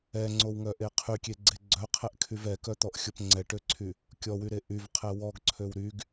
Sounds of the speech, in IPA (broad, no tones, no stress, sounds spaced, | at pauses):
ɛ ŋ͡ǀ o w ŋ œ ʔ e qʰ y kʲ e ɡ͡ǀ e ɡ͡ǀ œ qʰ ɛ ʔ kʰ y v ɛ k œ t̪ ɔ ʔ xʲ o p ŋ͡ǀ ɛ ʈ ø ǀʰ y | kʲ ɔ w y ɾ e ʔ y v qʰ ɛ w ɔ ɡ ǀʰ ø w ɾ y ɡ